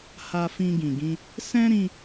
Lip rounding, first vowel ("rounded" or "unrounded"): unrounded